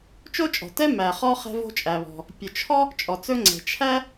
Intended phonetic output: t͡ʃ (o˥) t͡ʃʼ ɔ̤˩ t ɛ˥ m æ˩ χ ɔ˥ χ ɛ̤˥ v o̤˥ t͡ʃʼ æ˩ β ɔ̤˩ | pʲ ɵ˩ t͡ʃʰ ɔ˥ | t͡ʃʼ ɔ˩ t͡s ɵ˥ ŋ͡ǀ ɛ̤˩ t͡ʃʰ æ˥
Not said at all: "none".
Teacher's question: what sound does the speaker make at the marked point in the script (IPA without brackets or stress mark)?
o˥